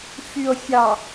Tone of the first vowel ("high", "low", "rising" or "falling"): low